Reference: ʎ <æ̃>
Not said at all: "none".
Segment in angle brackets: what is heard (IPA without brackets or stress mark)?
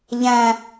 æ̃